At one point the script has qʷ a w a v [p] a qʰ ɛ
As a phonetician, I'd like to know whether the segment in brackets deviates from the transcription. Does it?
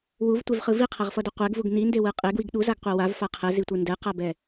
yes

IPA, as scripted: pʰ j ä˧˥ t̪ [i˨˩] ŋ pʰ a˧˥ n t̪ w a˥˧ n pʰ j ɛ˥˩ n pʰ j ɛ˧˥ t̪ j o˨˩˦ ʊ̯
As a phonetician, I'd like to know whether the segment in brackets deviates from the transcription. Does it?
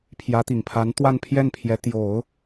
no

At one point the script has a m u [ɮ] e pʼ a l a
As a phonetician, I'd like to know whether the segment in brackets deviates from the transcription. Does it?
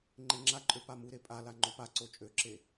yes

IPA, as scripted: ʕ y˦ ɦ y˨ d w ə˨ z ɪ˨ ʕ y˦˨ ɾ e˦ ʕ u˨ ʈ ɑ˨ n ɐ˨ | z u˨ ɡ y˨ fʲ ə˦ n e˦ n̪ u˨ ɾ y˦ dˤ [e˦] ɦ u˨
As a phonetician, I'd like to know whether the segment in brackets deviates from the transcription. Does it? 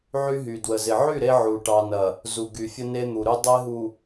no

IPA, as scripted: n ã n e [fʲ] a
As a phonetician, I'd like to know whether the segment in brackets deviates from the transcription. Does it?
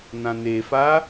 yes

